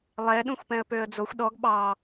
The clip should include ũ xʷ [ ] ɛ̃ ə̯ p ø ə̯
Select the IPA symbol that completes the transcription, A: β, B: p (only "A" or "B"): B